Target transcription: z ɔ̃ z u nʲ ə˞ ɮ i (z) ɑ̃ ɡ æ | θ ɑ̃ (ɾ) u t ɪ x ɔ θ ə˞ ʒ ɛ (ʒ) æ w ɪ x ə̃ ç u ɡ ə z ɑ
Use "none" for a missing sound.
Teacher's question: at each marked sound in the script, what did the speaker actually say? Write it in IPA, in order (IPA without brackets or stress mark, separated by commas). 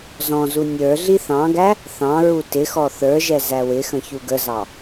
θ, ɹ, z